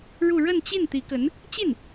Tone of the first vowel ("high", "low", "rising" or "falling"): falling